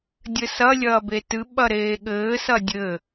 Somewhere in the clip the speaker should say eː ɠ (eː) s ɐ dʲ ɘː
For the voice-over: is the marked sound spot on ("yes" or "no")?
no